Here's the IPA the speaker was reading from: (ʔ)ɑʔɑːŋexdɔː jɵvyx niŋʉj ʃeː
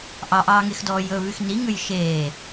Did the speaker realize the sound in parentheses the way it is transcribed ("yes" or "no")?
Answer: yes